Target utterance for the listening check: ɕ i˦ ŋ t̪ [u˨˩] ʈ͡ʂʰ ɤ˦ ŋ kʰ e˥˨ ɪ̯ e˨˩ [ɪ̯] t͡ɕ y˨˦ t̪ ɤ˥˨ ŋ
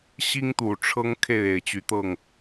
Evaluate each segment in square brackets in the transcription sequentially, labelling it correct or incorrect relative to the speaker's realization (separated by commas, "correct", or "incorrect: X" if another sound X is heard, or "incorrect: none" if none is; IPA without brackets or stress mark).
correct, correct